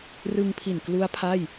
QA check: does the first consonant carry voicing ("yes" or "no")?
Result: yes